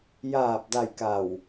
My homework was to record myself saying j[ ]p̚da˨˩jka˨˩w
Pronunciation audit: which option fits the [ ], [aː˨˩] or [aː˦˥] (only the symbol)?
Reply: aː˨˩